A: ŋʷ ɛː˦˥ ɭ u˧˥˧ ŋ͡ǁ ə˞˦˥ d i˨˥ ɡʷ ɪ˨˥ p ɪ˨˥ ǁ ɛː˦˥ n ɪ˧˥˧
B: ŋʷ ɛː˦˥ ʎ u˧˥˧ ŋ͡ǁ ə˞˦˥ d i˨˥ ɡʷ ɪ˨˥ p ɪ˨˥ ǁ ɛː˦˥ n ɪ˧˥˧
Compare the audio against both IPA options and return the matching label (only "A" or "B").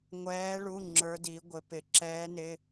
A